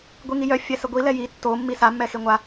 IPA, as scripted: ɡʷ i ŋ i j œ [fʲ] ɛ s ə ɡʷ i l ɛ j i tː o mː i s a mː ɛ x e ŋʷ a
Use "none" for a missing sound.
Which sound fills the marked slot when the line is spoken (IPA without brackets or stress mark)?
fʲ